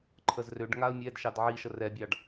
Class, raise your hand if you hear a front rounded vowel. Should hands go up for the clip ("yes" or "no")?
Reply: yes